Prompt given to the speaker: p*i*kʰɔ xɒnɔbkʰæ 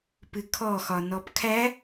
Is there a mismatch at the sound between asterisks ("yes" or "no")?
yes